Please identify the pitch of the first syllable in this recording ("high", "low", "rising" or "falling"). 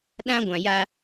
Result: high